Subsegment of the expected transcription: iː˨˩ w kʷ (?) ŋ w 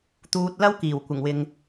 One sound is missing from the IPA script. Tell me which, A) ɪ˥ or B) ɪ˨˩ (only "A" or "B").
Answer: B